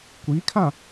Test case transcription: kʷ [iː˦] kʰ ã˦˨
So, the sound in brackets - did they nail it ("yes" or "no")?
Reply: no